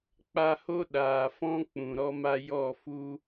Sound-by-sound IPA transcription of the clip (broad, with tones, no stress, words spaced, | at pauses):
k͡pa˧ho˦ɗaː˨fɔ̃˦ k͡pũ˨ɾɔ˦ma˦ jɔ˦˨fu˦